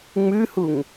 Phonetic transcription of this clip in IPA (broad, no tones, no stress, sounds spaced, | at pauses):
ŋ͡m ʉ h u ŋ